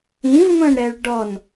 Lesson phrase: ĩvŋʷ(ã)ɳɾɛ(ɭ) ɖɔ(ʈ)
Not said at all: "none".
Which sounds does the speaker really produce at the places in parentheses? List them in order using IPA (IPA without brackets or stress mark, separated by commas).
ɐ̃, ɭ, n